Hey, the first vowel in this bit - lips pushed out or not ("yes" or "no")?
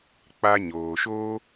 no